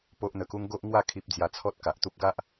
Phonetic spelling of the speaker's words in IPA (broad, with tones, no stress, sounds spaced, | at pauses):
p o˦ ʔ n̪ ə˧ k u˦ ŋ ɡ o˦ ʔ ŋ w a˥˧ kʰ i˦ p̚ d͡z j a˧ t͡sʰ ɔ˦ t̚ k a˨ ʔ t̪ u˦ p̚ ɡ a˦ ʔ